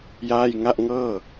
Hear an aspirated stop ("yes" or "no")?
no